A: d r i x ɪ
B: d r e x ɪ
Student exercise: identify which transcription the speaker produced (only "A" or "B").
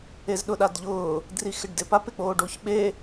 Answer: A